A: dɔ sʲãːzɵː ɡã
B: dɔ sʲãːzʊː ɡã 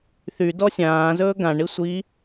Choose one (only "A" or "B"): A